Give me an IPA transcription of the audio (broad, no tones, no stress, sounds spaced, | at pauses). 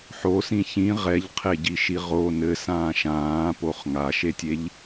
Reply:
ħ o s ĩ ç ĩ ʁ ɛ ʎ qʰ e ɟ i ʃ i ʁ o n ɘ s ãː ʃ ãː p o χ ŋ a ʃ e tʲ e ʎ